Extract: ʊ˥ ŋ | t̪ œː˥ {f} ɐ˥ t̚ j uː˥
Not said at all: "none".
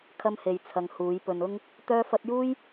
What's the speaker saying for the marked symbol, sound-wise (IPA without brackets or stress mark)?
f